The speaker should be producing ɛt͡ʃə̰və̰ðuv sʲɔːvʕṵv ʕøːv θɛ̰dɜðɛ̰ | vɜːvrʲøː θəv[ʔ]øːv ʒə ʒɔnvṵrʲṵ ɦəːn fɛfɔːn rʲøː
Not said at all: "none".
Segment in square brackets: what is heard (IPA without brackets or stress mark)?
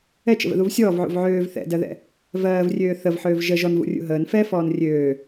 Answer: ħ